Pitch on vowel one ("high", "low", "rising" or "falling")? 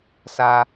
low